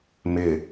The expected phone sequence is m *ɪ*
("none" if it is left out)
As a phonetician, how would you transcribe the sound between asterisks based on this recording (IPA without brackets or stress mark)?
ɪ